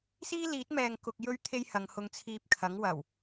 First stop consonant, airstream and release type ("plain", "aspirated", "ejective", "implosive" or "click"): plain